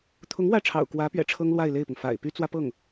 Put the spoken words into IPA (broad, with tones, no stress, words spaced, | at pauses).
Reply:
t̪ʰʊ˧˥ŋ wä˥˩ʈ͡ʂʰɑ̰˨˩ʊ̯kwä˧˥pɥɛ̰˨˩ ʈ͡ʂʰɤ˥ŋlwa˥˧ɪ̯le˥˩ɪ̯pʊ˩ŋ fa̰˨˩ɪ̯ py˥t͡swä˥pɤ˥˩ŋ